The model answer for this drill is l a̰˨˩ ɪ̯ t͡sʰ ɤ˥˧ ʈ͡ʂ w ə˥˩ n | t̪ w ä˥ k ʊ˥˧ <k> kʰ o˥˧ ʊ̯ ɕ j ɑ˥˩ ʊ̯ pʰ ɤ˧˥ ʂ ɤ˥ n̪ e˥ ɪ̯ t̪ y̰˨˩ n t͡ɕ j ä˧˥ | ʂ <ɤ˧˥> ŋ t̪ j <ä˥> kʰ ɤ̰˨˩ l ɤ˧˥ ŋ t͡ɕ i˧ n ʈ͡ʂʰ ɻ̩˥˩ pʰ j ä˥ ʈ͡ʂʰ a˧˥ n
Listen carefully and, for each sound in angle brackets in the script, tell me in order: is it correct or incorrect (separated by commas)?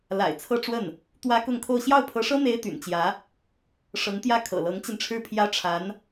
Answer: incorrect, correct, incorrect